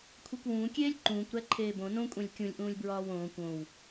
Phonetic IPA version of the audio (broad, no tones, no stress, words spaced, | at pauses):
kʷʰekʷwũː kʲeːlʲǃũːkʷɾæ ǃʰeːbõ nõkʷʼẽlʲ kʲũlʲʔũːlʲ bɹɒːwõːkʷ õw